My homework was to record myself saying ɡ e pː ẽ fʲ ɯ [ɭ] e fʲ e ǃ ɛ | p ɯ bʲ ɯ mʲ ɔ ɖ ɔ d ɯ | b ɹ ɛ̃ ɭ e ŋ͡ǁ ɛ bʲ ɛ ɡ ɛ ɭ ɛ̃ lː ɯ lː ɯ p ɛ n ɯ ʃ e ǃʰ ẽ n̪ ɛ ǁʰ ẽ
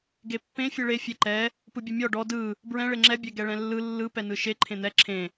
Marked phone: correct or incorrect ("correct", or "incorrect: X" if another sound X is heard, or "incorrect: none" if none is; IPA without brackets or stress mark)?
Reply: correct